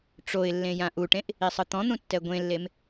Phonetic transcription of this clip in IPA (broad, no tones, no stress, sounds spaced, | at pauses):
ʈ͡ʂ o ɪ̯ lː ẽ j ã ʔ u ʈ ẽ ʔ | i sˤ ɯ t̪ ɔ̃ n̪ ũ tː ɛ ɡʷ ẽ lː e m